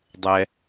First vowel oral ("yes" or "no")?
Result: yes